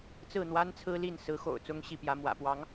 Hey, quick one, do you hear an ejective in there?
no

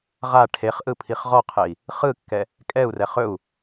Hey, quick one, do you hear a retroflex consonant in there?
yes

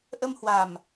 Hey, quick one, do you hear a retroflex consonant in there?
no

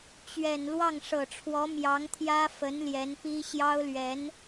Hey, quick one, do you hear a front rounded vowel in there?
no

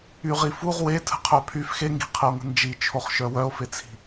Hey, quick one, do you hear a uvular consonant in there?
yes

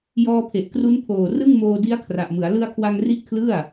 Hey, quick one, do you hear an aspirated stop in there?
yes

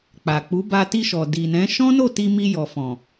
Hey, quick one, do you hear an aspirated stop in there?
no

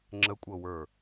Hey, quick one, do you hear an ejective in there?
yes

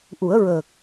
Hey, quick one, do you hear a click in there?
no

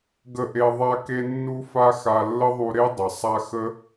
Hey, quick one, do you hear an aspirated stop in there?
no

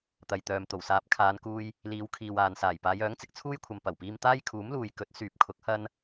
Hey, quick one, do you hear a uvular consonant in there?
no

